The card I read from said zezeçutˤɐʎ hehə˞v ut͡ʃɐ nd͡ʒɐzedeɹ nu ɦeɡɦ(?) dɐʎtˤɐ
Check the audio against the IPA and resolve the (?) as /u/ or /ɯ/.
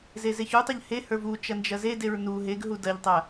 u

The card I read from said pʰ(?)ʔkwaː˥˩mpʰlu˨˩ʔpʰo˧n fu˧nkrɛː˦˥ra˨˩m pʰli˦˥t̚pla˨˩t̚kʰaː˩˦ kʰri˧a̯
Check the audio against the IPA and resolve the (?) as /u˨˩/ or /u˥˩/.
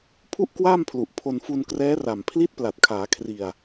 u˥˩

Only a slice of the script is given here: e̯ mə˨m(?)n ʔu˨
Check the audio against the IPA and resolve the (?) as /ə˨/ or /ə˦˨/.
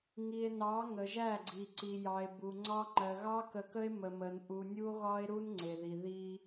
ə˨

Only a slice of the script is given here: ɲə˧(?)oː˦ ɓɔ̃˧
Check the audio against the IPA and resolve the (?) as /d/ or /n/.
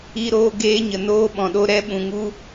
n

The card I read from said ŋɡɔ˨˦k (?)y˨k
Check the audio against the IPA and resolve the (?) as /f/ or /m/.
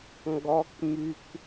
m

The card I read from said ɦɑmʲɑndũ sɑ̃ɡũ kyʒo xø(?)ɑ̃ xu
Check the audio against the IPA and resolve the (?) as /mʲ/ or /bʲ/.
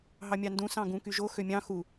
mʲ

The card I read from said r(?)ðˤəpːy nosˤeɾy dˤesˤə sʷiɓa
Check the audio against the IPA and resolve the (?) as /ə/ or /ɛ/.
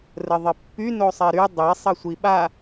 ə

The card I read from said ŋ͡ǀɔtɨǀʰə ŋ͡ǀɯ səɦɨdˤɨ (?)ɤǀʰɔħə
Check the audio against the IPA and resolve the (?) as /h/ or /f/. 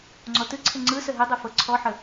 f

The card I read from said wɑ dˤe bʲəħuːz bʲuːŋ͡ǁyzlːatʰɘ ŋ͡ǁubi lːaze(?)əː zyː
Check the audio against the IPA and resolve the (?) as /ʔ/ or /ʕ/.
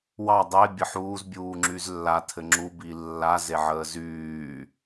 ʕ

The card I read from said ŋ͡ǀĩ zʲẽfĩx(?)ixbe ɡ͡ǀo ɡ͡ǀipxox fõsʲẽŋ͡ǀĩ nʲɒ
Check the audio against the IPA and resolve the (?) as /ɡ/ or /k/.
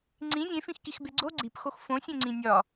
k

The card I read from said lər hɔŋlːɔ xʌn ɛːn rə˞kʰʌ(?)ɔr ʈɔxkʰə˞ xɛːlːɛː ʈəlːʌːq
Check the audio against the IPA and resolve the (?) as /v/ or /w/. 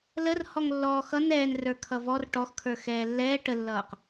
v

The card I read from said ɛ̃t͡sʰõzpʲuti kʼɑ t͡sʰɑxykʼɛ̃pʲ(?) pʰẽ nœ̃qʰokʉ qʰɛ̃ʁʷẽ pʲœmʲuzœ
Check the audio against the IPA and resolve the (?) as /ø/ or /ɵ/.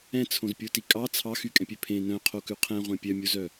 ø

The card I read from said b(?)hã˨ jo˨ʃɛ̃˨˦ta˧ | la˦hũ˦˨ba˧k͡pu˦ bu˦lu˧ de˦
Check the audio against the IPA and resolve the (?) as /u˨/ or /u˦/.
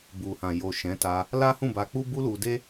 u˨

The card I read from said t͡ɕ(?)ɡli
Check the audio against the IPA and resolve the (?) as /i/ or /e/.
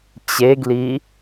e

